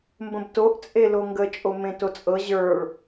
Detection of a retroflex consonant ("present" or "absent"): present